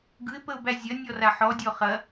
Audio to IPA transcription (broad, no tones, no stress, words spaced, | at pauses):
ɡɯɪ̯pəʊ̯bæ zʲɐ nʲɔraħɔdʲɔ χɐ